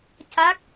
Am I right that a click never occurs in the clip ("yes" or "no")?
yes